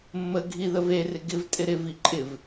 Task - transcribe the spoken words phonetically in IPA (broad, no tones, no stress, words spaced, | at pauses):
mːəɡʱiðəv erɪ ɡɪvtʼɪ ɾɪvi ǃʼɪv